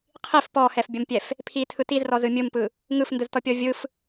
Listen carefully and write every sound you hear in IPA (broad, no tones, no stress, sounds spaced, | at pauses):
qʰ i f p ɔ h ɛ f bʲ ʌ m pʲ ɛ f | pʰ i tʰ ɯ t i z r ɔ z ɯ mʲ ɯ m p ɯ | ŋ ɯ f n d ɯ z t ɔ pʲ ɔ vʲ ɯ f